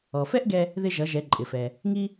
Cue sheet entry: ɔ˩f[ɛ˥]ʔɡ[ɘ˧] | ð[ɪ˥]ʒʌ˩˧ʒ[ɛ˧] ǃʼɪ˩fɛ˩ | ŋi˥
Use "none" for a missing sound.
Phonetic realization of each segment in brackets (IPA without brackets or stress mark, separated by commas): ɛ˥, ɛ˧, ɪ˧, ɛ˩˧